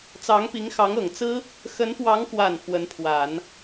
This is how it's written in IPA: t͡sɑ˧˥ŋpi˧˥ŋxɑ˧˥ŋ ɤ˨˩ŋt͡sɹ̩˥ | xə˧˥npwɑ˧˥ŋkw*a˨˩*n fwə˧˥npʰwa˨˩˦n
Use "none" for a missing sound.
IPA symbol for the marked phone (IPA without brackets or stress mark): a˨˩